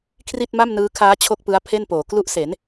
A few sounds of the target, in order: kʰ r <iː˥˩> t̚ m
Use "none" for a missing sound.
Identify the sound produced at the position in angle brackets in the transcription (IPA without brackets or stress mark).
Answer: i˥˩